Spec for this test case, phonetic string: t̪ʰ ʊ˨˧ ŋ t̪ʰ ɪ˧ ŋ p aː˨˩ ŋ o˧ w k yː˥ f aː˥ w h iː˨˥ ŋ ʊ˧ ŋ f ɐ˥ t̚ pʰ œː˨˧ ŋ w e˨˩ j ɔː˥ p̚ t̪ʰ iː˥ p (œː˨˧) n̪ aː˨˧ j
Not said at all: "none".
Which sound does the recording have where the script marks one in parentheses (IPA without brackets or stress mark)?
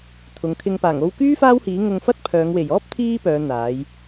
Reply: œː˨˧